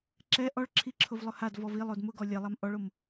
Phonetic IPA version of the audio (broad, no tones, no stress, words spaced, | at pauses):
ǁɛ ʔɔɭǁʰiǁʰʊvlˠʊ hadvɔv ilˠod mʊɡɔ lʲɛlˠam ʔɔɭom